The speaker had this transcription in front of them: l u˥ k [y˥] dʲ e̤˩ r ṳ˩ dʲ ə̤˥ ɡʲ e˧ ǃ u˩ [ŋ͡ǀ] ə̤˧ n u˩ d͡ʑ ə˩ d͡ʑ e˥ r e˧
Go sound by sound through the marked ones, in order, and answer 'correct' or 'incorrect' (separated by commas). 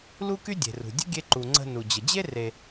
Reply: correct, correct